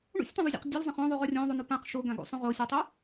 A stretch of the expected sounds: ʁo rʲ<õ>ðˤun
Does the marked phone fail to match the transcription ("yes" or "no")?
no